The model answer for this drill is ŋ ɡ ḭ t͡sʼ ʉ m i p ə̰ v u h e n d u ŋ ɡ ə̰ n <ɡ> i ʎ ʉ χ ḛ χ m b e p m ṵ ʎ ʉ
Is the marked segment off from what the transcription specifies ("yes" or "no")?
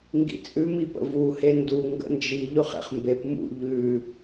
yes